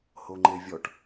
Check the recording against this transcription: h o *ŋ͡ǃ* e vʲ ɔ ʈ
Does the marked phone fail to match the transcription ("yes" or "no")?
no